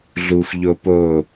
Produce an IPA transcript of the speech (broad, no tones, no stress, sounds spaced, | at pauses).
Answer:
ɮ u xʷ ʎ o p o